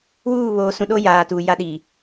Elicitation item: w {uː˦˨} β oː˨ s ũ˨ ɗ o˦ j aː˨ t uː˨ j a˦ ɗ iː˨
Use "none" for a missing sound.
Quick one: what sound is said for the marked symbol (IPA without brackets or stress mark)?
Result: uː˦˨